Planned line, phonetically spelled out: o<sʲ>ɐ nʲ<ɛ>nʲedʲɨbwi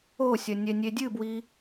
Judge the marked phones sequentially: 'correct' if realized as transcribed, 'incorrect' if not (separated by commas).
correct, correct